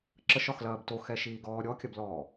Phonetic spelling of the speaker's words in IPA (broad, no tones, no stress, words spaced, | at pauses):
ǁəʃɒxlɐːb toxɛʃiːɡɔː ɾʲɔkʲɐblɔː